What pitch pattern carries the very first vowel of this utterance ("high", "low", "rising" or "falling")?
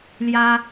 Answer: high